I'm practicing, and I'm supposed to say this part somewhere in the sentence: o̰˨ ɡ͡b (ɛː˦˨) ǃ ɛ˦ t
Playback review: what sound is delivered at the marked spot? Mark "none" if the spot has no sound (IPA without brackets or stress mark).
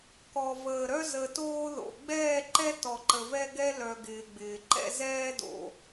ɛː˦˨